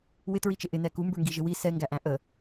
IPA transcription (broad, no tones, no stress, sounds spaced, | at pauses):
w ɪ t ɹ i t͡ʃ ɪ ʔ ɪ n ɛ k u m b ə˞ ŋ ɡ i ʒ ɪ w i s ɛ ŋ ɡ æ ʔ æ̃ ʔ ə